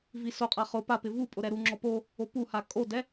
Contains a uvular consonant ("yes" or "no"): yes